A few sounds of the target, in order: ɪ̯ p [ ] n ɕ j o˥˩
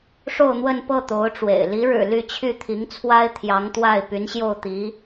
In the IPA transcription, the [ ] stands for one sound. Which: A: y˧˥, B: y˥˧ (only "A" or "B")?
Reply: A